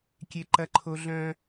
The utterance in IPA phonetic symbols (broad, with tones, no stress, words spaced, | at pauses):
kʲe˦ǃɐ˦ǃʰo˦ ɮœ̃˦